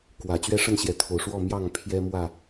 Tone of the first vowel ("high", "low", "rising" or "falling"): low